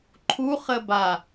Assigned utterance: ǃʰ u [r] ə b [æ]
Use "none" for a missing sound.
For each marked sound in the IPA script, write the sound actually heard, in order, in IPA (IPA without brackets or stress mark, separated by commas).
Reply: χ, a